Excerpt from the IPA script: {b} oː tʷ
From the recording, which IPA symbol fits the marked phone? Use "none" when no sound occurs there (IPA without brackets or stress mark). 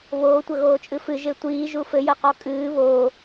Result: β